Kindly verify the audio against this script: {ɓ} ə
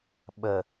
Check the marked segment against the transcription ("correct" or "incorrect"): correct